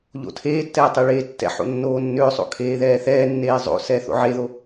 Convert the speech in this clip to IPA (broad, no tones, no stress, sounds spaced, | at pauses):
ʎ o̰ tʰ eː tː ɛː tˤ e ɭ eː tː ɛ̰ ħ o̰ nː oː nː ʏː sˤ o̰ kʰ eː ð ɛː θ ɛː nː eː zˤ o̰ s ɛ θ o̰ ʕ e ð o